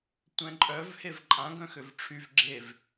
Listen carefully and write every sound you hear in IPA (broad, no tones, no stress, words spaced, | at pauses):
tʷɛ̃ǃʼœv hevǃʼã ɡœ̃xøvʈ͡ʂʰyv ɡ͡ǁev